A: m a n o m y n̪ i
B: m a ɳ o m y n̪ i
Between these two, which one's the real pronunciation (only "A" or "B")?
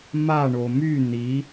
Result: B